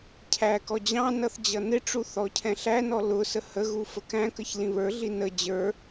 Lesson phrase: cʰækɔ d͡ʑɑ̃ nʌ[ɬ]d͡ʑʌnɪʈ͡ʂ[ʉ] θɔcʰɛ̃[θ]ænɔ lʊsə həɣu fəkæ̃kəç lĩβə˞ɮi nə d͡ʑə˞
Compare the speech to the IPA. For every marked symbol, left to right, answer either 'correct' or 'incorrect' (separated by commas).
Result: incorrect, incorrect, incorrect